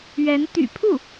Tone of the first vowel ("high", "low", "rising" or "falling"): rising